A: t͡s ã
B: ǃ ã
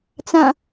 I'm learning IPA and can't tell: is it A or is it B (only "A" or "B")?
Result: A